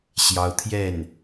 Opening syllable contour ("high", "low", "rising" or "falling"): rising